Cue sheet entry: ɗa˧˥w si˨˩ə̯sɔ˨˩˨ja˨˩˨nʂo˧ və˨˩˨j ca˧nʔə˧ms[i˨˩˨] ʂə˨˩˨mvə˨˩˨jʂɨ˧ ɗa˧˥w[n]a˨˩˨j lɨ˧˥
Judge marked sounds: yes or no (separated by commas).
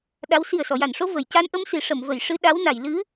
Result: yes, yes